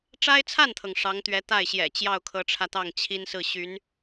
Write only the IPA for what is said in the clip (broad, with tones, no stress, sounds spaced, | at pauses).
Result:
ʈ͡ʂ a˥ ɪ̯ t͡sʰ a˥˩ n t̪ʰ ɤ˩ ŋ ʂ ɑ˧˥ ŋ t̪ ɥ ɛ˧˥ t̪ a˥˩ ɪ̯ ɕ j ɛ̰˨˩ t͡ɕ j ɑ˥˩ ʊ̯ kʰ ɤ˧˥ ʈ͡ʂʰ ä˧ t̪ ɑ˥˩ ŋ t͡ɕʰ i˥ n s ɹ̩˥˩ ɕ y˧˥ n